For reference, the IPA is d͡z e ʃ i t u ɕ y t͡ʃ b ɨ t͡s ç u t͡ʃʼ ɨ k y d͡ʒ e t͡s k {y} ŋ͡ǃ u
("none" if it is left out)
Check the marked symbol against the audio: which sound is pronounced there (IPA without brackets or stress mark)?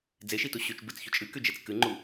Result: ɨ